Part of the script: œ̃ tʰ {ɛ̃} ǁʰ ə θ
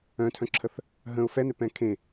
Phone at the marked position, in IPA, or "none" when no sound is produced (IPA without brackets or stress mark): œ̃